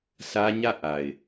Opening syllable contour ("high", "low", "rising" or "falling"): high